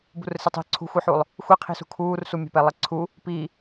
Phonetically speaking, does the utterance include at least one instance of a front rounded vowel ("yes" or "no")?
no